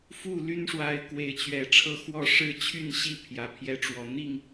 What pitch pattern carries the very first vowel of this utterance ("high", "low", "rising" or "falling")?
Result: falling